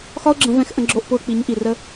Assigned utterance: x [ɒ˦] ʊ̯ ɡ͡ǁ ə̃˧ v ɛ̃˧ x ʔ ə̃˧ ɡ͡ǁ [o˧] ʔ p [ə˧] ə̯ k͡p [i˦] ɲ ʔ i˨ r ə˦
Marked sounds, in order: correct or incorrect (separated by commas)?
correct, correct, incorrect, incorrect